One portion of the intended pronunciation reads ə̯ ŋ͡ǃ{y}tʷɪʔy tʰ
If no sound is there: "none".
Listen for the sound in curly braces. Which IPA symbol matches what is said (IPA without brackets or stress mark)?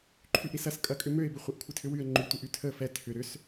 y